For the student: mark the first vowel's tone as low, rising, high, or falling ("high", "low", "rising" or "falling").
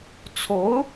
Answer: rising